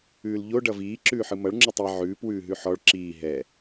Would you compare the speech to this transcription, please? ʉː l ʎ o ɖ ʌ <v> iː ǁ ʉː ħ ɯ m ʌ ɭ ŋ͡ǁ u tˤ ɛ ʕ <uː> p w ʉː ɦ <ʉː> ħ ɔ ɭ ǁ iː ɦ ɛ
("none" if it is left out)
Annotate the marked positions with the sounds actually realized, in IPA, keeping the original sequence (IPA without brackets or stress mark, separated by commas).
v, ʉː, ʉ